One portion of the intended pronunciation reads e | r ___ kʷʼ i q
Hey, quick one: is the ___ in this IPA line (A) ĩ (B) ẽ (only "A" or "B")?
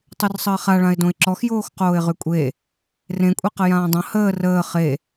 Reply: B